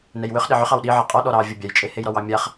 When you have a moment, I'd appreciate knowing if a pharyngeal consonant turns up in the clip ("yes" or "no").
yes